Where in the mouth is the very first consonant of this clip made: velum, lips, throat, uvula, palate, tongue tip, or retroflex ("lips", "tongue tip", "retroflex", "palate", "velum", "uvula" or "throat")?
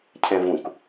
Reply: palate